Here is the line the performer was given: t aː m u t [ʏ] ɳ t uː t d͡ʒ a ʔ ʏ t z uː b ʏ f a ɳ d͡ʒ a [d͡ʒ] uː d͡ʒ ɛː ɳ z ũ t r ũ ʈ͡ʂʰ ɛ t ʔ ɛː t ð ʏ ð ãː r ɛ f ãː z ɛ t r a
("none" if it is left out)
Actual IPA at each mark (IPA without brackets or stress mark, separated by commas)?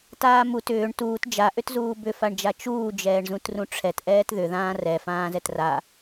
ʏː, t͡ʃ